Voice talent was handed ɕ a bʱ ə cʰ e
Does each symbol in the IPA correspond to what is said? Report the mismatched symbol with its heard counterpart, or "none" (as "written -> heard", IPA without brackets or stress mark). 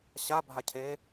ə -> a